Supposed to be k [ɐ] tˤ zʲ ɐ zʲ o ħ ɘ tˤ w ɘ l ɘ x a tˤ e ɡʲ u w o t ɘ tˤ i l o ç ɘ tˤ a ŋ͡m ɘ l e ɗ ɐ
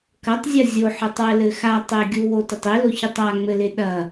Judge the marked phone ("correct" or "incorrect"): correct